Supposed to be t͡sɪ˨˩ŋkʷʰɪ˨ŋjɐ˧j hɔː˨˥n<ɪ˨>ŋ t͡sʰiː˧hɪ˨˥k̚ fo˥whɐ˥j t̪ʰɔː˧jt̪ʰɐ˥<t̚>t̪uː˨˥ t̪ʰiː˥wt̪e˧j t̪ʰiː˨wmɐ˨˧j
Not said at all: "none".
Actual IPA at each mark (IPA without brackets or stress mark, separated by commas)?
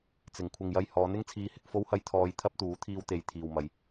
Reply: ɪ˥, p̚